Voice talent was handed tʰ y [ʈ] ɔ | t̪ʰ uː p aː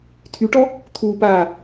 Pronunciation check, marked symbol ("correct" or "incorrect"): correct